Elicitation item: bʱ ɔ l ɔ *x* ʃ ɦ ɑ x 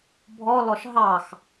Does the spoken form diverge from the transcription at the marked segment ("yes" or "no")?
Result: yes